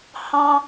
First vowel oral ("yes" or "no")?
no